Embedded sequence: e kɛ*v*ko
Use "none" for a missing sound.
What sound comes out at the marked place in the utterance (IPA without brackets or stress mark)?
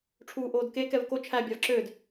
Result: v